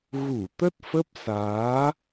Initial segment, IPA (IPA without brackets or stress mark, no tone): ɣ